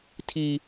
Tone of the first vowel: low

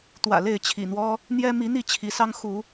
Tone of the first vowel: low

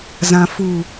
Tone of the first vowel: low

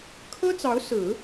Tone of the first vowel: high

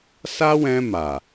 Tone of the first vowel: high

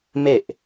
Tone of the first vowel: falling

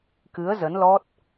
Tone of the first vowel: rising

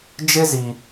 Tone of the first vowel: high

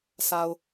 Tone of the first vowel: low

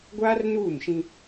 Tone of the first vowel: high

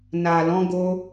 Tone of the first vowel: low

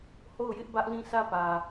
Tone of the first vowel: falling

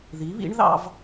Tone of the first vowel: rising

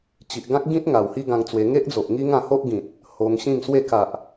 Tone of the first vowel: low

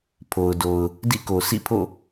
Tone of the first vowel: low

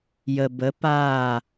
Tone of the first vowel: low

